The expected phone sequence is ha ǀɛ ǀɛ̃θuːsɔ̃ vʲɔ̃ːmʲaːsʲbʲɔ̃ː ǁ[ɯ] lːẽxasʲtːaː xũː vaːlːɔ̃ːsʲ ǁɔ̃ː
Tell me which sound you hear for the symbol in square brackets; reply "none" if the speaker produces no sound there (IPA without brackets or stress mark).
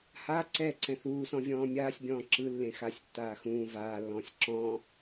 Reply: ɯ